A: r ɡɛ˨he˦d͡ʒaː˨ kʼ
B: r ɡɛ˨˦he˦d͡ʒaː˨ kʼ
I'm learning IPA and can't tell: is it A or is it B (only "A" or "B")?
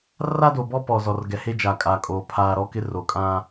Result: A